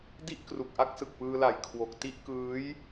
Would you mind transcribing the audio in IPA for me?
d i˥˩ ʔ k r u˨˩ k̚ ʔ a˥˩ k̚ s ɯ˨˩ k̚ p ɯː˧ l a˨˩ j kʰ w o˨˩ k̚ t i˥˩ ʔ k ɯː˦˥ j

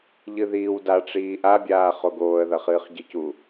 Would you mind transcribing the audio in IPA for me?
ʎ ɨ ð iː w d a ʈ͡ʂ iː ʔ a bʲ aː χ o ɡ oː ə̯ ð ɐ χ ɨː χ ɟ ɨ c u

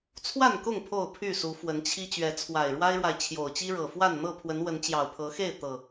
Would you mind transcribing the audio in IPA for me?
t͡sʰ w a˥˨ n k ʊ˥˨ ŋ pʰ o˥˨ ʊ̯ pʰ y˥˨ s u˨˦ f w ə˨˦ n t͡ɕʰ i˦ t͡ɕ ɥ ɛ˨˦ t͡sʰ w a˨˩ ɪ̯ ɻ w a˦ ɪ̯ ɻ w a˨ ɪ̯ t͡ɕʰ j o˨˩ ʊ̯ t͡ɕ i˦ ɻ ɤ˨˩ f w a˥˨ n n̪ ɤ˥˨ pʰ w ə˨˦ n w ə˨˦ n t͡ɕ j ɑ˨˩ ʊ̯ pʰ ɤ˨˦ x e˥˨ ɪ̯ t̪ ɤ˨˩

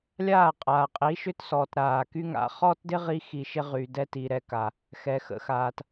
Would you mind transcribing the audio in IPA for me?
lʲ aː˦˨ qʼ aː˨ qʼ i˨˦ ʃ ʏ˦ t s ɔː˨ t ɾ aː˨ k y˧ ŋ a̰˨˦ χ ɔː˦ t d ɪ˦ ʁ i˦ x i˧ ʃ ɪ˦ ʁ y˨ d ɛ˧ t i˨ ɾ ɛ˨ k a˨ | x ɛ˨ x ə̰˨˦ x aː˨ t

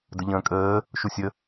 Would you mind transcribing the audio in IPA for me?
d ə ʎ ə̃ː kʼ əː | ʃ u sʲ ə

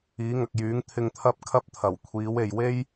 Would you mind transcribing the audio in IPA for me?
iː˨˥ ŋ ɐ˨ k̚ j yː˨˥ ŋ t̪ʰ ɪ˧ ŋ t̪ʰ ɐ˥ p̚ kʰ ɐ˥ p̚ t̪ʰ ɐ˨˩ w kʷʰ iː˨˥ w e˨ j w e˥ j

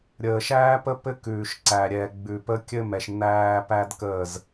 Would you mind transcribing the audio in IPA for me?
ɾʲ əː˨ ʃ æː˦ p ə˦ p ɘ˦ k ʉː˨ ʃ ǀ æ˨ ɾʲ ɛ˨ ɡ͡b ʉ˨ p ə˦ kʲ ɘ˦ m ɛ˨ ʃ n æː˦ p æ˦ d k əː˦˨ z

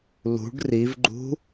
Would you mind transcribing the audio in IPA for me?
l ṳ ɖ r i v ɡ͡ǃ ṳ

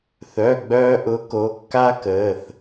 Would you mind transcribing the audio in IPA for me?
θ œ˩˧˩ ɡ͡b œː˧ ʔ ʊ˨˥ k o˩˧˩ kː a˥ k əː˩˧˩ θ

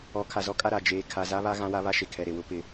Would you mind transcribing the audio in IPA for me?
ɔ˨˦ kʰ a˨ z ɔ˦ kʼ a˦ ɾ a˨ d͡ʒ eː˨ kʰ a˨ z a˦ β a˦ ɣ ã˦ w a˦ β a˦ ʃ e˨ kʰ ɛ˨ ɾ e˨ w ʊ˦ p ɪ˦

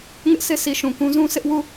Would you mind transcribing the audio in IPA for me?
ŋ ɪ˦ ʔ sʰ e˦ sʰ i˨ ʃ ũ˨ k ũ˦ z ũ˦ s ɪ˦ ʔ w u˦˨

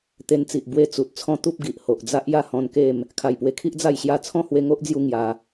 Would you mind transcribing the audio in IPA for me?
t̪ e˧ n t͡s i˨ ʔ b w e˧ t͡s u˨ t̚ t͡sʰ ɔ̃˦ t̪ u˦ p̚ ɡ i˨ ʔ h o˨ ʔ d͡z a˦ ʔ j a˥˧ h ɔ̃˧ n k e˥˧ m | kʰ a˨˩ j p w e˧ kʰ i˦ ʔ d͡z a˥˧ j ɕ j a˦ t͡sʰ ɔ̃˥˧ h w e˧ ŋ o˦ ʔ d͡z j u˧ ŋ j a˧

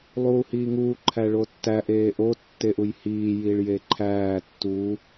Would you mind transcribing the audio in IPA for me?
lˠ uː h iː ŋ uː ǃʰ æ ɭ o tː æ ʔ eː ʔ o tː e ʔ u j h iː j i ɭ j e ǃʰ æː tː u

